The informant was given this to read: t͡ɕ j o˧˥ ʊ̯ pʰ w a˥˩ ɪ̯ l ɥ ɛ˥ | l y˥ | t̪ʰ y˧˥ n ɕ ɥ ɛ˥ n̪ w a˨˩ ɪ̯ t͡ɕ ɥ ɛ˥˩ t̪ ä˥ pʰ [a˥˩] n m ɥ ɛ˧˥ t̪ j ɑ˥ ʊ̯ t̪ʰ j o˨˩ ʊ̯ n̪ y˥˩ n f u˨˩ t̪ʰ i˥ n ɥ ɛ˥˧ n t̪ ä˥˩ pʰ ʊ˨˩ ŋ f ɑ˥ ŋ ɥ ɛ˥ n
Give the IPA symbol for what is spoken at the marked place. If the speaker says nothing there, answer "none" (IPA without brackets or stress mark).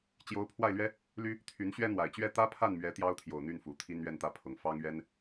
a˥˩